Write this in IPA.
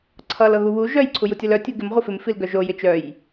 ǀʰʌl ɤɣuβu ʒœj ǀʰujutʲʌlœ tʲuɡɪm ʁʷɪfɪm filɡœʒo jɪt͡ʃœj

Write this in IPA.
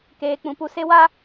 keː˦k͡pũ˦pu˦ se˦wa˦

